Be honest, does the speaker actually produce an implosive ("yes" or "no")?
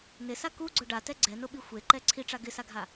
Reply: yes